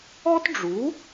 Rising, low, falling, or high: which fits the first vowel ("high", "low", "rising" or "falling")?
high